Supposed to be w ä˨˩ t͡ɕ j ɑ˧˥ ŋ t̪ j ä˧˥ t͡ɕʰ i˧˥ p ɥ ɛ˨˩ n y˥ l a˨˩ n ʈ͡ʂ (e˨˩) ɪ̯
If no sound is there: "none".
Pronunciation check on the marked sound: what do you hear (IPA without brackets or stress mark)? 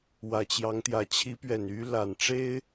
e˥